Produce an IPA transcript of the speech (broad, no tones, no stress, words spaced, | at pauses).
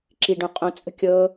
ǁiɖõ qʼõt͡sʼə̤ kʲɤ